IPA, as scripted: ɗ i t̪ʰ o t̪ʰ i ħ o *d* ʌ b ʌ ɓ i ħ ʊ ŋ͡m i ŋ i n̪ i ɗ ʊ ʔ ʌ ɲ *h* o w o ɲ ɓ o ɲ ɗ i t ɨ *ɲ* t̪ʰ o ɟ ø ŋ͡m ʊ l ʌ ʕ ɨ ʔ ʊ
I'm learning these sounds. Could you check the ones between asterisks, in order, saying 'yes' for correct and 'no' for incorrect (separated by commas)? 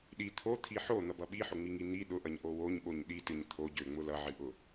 no, no, yes